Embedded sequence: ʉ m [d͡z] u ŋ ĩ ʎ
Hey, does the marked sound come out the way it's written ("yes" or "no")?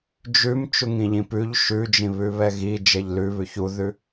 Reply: no